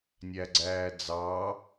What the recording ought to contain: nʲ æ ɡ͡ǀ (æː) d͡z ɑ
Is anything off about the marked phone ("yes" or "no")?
no